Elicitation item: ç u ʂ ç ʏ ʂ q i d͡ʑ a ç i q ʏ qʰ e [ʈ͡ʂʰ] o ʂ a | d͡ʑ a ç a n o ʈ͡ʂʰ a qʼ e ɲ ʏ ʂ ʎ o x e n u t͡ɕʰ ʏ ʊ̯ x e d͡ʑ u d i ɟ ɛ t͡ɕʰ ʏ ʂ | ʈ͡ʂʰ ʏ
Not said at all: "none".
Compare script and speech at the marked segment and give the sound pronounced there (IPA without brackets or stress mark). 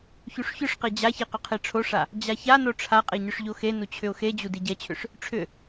ʈ͡ʂʰ